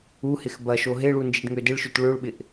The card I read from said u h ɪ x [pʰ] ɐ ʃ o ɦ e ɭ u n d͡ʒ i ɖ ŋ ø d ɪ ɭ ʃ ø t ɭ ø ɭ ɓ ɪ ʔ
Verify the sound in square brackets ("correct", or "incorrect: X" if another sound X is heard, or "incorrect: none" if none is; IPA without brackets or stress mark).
incorrect: b